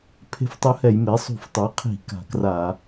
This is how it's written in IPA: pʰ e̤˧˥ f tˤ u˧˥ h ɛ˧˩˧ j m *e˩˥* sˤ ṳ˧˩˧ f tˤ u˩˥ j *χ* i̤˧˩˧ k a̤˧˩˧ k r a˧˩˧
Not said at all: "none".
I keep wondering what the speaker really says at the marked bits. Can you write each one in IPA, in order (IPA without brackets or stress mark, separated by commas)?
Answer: e˩˥, qʰ